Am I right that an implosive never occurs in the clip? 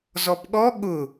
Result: no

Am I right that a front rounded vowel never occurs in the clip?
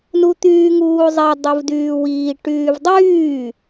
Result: no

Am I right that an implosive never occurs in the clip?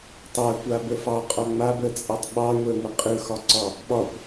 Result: no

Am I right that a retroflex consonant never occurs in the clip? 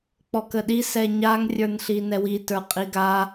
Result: yes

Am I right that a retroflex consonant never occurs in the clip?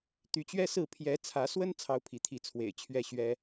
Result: yes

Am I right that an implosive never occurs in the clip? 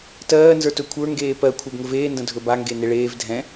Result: yes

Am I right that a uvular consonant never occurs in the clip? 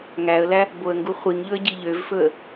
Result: no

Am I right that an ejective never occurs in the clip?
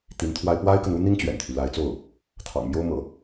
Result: yes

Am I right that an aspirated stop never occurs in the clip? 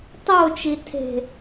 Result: no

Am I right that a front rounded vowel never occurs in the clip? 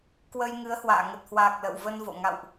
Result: yes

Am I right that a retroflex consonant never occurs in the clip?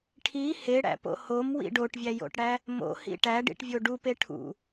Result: no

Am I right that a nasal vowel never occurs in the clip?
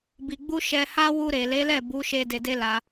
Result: yes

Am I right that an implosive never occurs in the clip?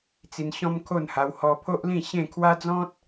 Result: yes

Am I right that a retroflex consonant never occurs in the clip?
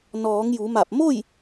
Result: yes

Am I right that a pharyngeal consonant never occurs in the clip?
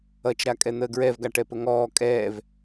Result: yes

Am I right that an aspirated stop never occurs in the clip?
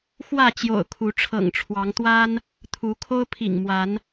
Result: no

